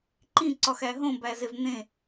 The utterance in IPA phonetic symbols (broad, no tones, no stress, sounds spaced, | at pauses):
ǃ ĩ ǀ ɒ x æ ɦ õ b æ z e v n̪ ẽ